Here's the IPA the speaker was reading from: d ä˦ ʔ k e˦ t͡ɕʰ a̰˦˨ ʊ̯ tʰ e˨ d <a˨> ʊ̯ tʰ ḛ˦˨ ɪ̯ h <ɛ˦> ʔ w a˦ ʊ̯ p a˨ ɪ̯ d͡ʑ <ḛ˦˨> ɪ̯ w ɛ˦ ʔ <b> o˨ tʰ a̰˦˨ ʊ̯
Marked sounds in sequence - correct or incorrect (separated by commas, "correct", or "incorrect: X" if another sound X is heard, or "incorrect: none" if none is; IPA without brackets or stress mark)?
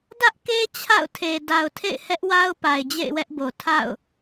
correct, correct, correct, correct